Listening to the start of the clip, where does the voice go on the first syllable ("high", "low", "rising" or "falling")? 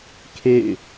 falling